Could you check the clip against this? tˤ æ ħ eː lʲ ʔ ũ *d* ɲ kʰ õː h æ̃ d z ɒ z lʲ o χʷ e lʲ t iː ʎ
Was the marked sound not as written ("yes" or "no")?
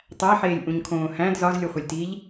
yes